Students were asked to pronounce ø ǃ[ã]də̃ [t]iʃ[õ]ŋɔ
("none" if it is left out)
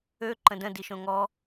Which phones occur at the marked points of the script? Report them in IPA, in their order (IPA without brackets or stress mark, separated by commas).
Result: ə̃, d, õ